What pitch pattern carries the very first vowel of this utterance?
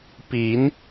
rising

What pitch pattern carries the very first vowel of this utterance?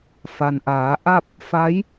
low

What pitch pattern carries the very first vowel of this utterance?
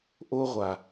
high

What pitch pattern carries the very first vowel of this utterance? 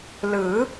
rising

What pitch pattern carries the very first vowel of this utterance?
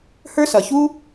high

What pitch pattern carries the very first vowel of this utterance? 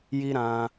high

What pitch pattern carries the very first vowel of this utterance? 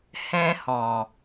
high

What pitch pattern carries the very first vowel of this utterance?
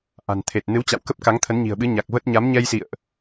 low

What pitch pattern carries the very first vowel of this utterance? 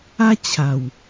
high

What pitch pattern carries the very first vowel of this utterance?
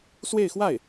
falling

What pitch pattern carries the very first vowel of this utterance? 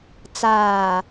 low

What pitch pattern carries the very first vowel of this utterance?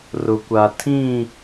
low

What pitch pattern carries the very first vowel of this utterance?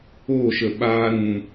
falling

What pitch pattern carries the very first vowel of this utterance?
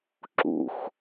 low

